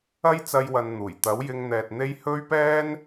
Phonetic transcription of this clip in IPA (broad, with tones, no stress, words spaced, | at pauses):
ɐ˥jt͡sɐ˧jwɐ˨n n̪uː˨˩j t̪ɐ˨˥wjɪ˧ŋn̪ɛː˨t̚ n̪e˥j hɵ˥ɥpɛː˥n